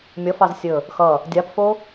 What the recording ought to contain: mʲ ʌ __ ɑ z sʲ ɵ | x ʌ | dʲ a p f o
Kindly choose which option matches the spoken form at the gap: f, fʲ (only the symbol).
f